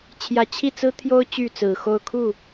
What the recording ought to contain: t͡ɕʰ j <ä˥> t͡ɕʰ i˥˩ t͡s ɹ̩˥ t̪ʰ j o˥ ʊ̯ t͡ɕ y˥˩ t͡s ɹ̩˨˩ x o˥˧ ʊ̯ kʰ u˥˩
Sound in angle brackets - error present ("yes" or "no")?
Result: yes